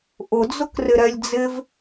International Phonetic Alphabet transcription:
ʔ ʊ d͡z ʊ k r ɪ ɾ ɛ lʲ d͡z ɪ v

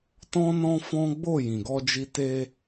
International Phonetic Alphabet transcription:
t ɔ̃˦ n ɔ̃˦ f ɔ̃˦ ɡ͡b o˦˨ j ĩ˨ ɡ ɔ˧ d͡ʒ i˧ t e˧

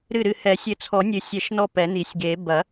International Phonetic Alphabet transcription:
ɾ ɨ˧˩ ɾ ɨ˧˩ h ɛ˨˩˦ sʲ ɘ˧˩ t͡sʰ ɔ˨˩˦ nʲ ɨ˨˩˦ sʲ ɛ˨˩˦ ʃ n ɔ˧˩ p ɛ˨˩˦ n i˨˩˦ sʲ ɡ e˨˩˦ b ɐ˨˩˦

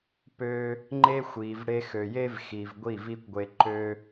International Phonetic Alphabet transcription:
p ø˧ | ŋ͡ǃ e˦ xʷ i˨ v ɽ e˧ x ø˨ j e˦ v x i˨ v ɡʷ i˦˨ v i˦ kʷ ɡʷ e˧ ǃ ø˧

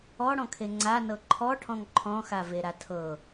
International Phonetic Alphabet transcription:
ɔ ɽ ɔ̃ kʰ e ŋ͡ǀ a n ɤ ǃʰ ɔ ʈʰ ɔ̃ ŋ ǃʰ ɔ̃ x a v e ɾ a tʰ ɤ

